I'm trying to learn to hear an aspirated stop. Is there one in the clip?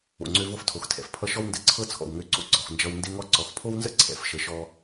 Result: yes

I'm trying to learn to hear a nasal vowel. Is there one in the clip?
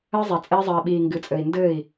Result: no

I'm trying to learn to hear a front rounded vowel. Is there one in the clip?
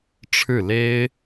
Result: no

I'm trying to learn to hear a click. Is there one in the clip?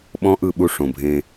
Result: no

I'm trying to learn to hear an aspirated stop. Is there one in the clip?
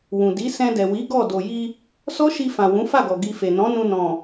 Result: no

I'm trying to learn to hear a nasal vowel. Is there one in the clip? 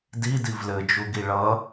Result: no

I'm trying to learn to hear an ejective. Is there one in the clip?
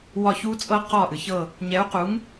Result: yes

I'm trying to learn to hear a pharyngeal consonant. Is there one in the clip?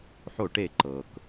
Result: yes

